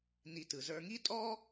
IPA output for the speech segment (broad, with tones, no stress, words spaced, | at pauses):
ni˨tɯ˩ zə˞˨ŋi˦tʼɔ˦